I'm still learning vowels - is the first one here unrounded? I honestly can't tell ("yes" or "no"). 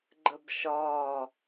yes